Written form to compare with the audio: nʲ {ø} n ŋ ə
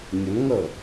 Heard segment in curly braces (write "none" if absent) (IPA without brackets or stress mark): ə